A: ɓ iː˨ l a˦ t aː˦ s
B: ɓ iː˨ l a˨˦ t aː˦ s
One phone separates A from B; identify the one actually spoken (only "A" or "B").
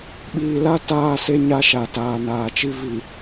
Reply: A